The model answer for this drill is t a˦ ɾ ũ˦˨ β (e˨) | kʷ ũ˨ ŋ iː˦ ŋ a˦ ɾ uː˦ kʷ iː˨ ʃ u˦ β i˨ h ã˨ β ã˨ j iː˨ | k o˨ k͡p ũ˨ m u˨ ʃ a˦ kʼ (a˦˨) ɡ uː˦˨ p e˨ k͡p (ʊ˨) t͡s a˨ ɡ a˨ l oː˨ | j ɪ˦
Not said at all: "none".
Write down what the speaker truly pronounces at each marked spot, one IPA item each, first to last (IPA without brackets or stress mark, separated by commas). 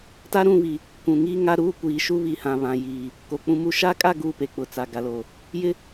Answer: i˨, a˦˨, ʊ˨